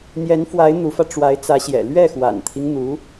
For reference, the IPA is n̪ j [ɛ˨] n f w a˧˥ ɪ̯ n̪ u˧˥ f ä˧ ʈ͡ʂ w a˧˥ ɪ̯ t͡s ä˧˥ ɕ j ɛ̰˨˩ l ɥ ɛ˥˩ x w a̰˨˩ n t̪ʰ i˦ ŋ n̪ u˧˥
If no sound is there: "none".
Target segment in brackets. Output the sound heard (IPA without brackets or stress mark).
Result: ɛ˧˥